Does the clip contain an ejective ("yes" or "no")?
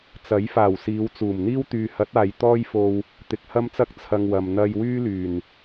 no